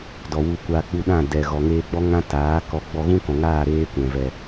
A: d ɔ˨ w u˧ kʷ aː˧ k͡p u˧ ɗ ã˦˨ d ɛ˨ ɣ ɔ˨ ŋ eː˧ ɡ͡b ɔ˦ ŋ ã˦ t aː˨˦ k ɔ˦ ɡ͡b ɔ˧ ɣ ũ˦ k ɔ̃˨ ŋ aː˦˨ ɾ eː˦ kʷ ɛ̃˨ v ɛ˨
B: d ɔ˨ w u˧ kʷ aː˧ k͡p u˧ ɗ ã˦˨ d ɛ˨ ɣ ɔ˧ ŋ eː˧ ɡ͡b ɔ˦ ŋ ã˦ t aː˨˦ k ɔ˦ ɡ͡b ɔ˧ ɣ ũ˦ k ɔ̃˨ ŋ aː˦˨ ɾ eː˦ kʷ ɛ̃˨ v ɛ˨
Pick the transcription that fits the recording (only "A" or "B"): A